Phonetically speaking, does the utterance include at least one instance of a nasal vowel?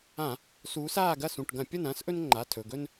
yes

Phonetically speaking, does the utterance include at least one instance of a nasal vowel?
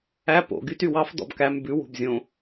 yes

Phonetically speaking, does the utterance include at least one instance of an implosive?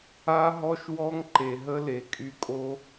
no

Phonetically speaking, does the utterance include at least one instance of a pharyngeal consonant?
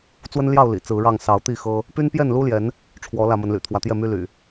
no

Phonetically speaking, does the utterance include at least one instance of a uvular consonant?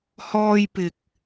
no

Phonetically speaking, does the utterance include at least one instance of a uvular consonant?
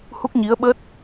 no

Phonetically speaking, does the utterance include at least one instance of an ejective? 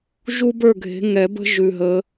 no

